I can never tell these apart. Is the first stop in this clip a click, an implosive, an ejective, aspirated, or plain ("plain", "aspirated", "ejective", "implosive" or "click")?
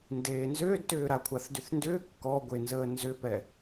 plain